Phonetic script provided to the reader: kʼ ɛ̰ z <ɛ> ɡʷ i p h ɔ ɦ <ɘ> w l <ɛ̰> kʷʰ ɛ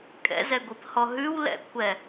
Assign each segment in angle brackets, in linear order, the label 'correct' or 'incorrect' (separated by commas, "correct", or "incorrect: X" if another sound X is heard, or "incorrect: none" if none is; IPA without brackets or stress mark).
correct, incorrect: ʉ, correct